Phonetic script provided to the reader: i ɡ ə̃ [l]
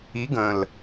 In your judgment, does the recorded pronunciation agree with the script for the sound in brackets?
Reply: yes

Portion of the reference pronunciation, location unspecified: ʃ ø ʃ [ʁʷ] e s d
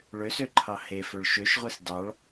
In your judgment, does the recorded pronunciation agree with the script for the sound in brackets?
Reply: yes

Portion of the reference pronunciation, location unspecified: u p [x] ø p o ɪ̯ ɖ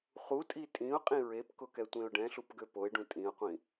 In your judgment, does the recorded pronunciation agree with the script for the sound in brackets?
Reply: no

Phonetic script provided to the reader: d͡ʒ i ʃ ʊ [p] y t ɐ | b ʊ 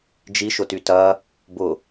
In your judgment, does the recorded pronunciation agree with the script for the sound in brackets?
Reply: no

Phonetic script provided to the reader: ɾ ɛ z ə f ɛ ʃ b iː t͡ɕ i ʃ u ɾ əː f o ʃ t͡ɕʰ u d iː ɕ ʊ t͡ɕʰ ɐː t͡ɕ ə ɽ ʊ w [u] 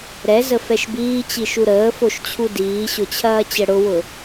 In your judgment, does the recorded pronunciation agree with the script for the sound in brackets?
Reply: no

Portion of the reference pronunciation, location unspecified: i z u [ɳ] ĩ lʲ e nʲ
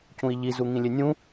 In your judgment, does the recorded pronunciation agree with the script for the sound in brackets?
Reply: no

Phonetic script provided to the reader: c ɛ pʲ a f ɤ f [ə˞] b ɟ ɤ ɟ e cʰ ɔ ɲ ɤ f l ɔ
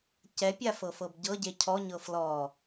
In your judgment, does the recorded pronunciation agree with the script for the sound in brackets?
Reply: no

